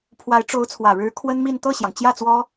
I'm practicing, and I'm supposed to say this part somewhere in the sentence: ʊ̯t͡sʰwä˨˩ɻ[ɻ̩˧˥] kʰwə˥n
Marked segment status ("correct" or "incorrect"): correct